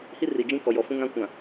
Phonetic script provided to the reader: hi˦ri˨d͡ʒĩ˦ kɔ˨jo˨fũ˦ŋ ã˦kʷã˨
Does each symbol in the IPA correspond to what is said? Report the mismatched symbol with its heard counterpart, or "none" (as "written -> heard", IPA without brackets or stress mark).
o˨ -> ɔ˨